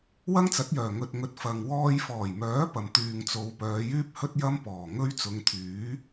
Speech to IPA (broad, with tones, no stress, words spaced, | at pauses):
wɐ˥ŋt͡sɐ˨˥t̚jœː˨˩ ŋɵ˨t̚ŋɵ˨t̚ fɐ˨ŋ wɔː˧jfɔː˨˩jmœː˨˥ pɐ˨m t̪yː˨ŋt͡so˨˧w pœː˨˧jyː˥p̚hɵ˥t̚ jɐ˥mpɔː˨˩ ŋɵ˥ɥt͡sʊ˨˧ŋt̪ʰyː˨˥